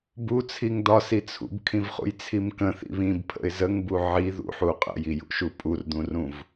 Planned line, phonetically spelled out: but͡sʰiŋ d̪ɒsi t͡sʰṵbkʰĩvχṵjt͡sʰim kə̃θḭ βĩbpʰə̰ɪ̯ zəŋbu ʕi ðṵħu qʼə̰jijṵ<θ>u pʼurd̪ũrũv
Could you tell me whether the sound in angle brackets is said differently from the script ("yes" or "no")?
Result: yes